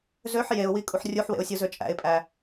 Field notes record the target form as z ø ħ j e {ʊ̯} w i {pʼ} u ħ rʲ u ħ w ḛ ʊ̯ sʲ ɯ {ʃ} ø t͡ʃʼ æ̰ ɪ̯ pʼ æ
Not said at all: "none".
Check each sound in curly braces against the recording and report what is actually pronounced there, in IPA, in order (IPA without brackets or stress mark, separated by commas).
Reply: ʊ̯, kʼ, z